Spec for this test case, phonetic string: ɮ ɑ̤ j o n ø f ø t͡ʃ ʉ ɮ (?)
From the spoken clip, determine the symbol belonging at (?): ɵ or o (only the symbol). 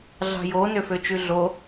o